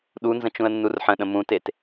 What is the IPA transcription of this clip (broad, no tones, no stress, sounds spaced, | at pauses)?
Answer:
ɗ u n z ə̃ t͡ʃ ũ ə̯ nː u r ħ ə̃ ɗ ə̃ m ũ t e t